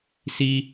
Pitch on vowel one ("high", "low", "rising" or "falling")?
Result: high